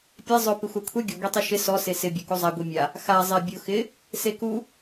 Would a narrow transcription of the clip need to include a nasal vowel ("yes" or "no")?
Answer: no